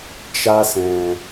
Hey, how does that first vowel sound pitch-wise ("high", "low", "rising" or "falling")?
high